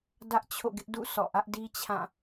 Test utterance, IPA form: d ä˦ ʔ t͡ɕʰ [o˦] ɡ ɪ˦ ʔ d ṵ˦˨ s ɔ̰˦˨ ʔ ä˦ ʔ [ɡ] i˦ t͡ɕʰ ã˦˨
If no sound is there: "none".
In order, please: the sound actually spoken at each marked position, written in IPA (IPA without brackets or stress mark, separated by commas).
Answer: o̰˦˨, d